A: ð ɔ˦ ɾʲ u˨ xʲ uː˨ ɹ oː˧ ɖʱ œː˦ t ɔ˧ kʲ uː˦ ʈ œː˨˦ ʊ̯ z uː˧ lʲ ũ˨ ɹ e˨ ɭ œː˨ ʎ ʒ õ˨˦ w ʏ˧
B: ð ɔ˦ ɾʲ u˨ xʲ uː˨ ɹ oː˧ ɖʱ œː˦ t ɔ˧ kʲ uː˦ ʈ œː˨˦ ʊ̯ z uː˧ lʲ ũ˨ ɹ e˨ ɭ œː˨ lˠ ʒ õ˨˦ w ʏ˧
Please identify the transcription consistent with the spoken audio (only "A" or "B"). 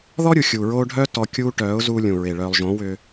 B